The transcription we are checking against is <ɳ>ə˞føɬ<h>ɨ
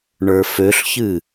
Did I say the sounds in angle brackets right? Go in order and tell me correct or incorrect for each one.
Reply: correct, incorrect

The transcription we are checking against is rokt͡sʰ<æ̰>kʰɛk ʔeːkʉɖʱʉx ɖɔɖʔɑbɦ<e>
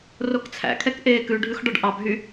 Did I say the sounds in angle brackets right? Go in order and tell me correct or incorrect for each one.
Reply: correct, incorrect

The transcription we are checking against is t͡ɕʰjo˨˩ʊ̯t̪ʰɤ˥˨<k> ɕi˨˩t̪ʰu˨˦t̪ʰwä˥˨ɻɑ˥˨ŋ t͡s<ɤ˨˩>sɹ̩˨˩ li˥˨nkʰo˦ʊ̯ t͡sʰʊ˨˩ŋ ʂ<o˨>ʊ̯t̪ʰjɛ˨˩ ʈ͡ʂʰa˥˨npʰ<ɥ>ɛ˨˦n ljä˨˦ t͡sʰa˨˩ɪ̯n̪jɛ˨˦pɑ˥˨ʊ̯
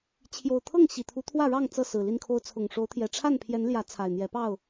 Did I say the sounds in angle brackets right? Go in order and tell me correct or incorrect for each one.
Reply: incorrect, incorrect, incorrect, incorrect

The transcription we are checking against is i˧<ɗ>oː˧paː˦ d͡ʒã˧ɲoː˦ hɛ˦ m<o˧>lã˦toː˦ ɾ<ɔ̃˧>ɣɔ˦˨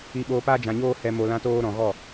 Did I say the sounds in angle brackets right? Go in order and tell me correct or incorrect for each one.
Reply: incorrect, correct, incorrect

